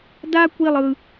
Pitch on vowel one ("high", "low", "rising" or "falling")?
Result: high